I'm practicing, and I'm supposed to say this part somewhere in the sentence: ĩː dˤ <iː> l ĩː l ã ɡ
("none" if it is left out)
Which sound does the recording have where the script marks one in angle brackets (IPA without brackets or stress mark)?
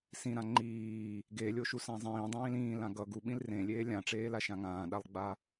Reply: ĩː